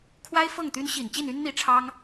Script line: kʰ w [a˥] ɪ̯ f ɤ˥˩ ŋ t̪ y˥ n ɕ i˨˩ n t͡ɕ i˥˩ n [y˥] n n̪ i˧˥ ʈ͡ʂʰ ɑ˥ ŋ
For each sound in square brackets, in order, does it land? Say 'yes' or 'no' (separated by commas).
yes, yes